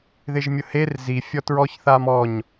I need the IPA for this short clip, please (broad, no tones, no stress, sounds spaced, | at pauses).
ð ɪ ʒ mʲ ʊ h e r z i fʲ ɔ t ɹ ɔ ç θ a m ɔ ɲ